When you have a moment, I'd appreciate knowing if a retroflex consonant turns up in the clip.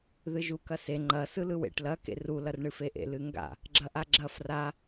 yes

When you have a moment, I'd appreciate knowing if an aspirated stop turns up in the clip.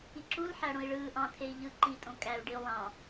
yes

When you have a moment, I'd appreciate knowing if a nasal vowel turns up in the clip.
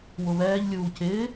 no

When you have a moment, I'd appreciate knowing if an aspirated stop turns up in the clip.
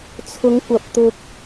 yes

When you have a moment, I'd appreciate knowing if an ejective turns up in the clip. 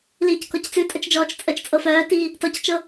yes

